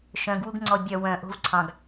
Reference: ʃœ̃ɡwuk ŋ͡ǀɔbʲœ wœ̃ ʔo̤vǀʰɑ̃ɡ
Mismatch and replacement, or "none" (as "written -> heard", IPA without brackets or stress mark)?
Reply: k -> ɡ